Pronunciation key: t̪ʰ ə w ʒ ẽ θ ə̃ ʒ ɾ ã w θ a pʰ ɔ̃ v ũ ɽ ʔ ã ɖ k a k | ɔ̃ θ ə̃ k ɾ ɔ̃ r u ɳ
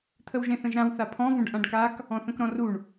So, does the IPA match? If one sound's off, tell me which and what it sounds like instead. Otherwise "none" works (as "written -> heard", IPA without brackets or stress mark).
ɽ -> ɖ